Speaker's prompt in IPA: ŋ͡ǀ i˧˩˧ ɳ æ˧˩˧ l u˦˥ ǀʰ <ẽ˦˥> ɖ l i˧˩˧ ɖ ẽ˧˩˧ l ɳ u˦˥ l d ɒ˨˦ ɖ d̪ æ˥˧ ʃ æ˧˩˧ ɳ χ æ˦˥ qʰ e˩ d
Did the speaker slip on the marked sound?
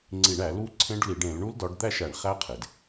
no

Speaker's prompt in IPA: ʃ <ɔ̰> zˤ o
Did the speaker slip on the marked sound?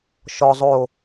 yes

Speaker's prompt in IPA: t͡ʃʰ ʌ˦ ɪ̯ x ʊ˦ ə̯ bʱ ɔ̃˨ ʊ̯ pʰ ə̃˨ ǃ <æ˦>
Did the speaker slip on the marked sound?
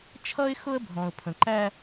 no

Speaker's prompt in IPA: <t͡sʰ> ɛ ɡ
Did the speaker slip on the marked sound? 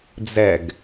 yes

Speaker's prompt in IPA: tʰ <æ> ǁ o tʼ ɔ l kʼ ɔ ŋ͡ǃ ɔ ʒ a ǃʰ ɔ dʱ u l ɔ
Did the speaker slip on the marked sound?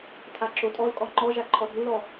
yes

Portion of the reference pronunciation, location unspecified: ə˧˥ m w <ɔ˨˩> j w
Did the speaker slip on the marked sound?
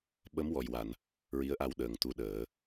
no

